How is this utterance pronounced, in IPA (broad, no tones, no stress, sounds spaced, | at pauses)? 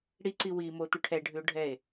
ɽ i ǀ i w i m o t̪ ʉ ʈʰ ɛ ɖʱ ʉ o̯ ɖʱ ɛ e̯